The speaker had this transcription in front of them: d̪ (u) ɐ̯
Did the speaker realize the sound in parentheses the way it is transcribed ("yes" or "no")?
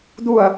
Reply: yes